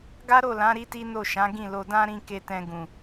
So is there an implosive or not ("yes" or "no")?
no